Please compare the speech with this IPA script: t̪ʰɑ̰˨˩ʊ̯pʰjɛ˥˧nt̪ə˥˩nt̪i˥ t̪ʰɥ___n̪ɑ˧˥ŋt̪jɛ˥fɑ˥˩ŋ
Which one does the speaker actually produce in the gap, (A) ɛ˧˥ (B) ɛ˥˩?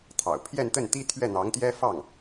B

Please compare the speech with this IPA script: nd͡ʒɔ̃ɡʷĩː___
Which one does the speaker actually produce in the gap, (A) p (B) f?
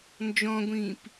A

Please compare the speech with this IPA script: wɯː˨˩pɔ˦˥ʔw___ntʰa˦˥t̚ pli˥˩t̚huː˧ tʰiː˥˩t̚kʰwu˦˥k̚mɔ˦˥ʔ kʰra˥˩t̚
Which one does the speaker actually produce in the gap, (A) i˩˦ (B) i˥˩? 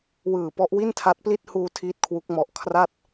B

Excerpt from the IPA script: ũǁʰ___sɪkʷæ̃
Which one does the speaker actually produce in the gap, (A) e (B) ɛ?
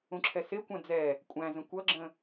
B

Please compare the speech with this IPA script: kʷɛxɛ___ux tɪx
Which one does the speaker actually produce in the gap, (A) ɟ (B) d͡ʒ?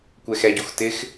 A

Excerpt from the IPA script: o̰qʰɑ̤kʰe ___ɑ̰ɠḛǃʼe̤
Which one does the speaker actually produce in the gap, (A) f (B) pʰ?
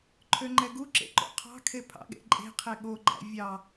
B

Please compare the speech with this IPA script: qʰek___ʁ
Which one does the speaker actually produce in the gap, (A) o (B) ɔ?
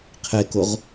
A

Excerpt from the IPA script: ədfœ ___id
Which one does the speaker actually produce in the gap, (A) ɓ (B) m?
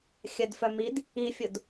B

